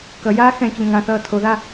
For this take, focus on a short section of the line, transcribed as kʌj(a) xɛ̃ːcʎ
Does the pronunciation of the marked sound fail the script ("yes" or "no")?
yes